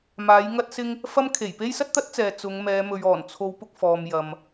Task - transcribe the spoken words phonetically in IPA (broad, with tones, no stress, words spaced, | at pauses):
maː˨˥jŋɐ˥t̚sɪ˥ŋ | fɐ˥mkʰe˨˩j pe˥jsɐ˥t̚t̪ɐ˥t̚t͡sɛː˨ t͡sʊ˨˧ŋ mɛː˨˧ mɵ˨ɥɔː˨˩nt͡sʰo˨˧w pʊ˧k̚fɔː˨m jɐ˨m